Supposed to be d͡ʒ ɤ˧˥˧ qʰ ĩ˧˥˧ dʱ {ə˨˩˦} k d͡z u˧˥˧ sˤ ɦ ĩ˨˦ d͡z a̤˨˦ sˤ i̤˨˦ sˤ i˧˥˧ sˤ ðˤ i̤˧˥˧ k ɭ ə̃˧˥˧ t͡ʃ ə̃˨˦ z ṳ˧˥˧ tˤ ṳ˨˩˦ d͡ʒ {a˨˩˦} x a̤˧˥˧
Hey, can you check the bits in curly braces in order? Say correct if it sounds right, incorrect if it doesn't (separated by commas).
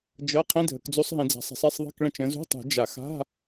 correct, correct